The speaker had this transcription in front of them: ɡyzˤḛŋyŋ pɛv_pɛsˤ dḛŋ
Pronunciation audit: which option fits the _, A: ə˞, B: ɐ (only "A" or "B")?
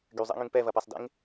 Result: B